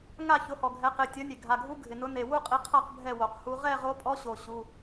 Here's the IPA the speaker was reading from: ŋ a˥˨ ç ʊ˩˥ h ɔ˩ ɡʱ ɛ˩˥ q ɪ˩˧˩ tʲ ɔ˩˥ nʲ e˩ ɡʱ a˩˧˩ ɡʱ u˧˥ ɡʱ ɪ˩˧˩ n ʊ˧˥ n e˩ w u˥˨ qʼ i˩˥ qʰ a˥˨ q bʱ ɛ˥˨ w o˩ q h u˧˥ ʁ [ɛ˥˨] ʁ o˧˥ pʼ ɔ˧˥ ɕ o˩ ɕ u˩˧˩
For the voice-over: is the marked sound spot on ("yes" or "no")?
yes